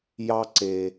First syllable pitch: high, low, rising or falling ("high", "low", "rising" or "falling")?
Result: high